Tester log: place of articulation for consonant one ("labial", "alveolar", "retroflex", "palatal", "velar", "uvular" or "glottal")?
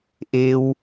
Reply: glottal